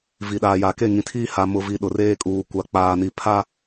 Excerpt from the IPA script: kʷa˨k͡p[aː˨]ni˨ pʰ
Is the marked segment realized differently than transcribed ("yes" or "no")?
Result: no